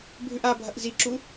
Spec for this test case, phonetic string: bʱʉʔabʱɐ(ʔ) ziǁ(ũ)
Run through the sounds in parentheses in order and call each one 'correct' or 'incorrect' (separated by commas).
correct, incorrect